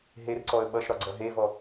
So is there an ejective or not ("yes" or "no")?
no